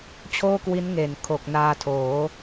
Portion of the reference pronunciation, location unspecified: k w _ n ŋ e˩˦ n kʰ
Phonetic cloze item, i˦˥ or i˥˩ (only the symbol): i˦˥